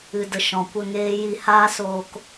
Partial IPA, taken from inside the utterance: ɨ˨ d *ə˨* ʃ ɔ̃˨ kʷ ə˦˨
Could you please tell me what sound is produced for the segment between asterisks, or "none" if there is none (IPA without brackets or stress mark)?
ə˨